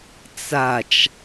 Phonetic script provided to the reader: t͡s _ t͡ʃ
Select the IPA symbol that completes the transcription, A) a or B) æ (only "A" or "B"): A